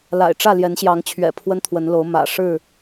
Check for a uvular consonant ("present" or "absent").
absent